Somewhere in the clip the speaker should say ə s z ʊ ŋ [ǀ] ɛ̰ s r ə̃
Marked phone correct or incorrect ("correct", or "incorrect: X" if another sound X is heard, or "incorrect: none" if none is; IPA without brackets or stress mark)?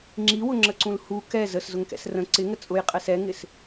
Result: incorrect: k